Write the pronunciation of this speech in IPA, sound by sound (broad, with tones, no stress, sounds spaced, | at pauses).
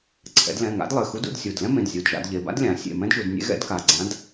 ǀʰ ɛ̰˩˧ d l ɛ̃˩˧˩ ŋ a̰˧˥ d lˠ ɘ˩˧˩ x u˧˥ d ṵ˥˨ d sʲ u˩˧˩ d l ɛ̃˥ m ẽ˩˧˩ d zʲ u˩˧˩ d ʒ a̰˩˧ d ʎ e˩˧˩ b a̰˥ d lʲ ã˩˧ sʲ ḛ˩˧˩ m ɛ̃˥ d ʒ u˩˧ d nʲ ḛ˧˥ ɣ ɛ̰˧˥ d k a˩˧˩ ɡ͡ǀ ã˧˥ d